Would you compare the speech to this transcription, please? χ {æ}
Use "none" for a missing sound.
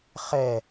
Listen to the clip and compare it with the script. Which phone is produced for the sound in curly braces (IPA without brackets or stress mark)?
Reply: ɛ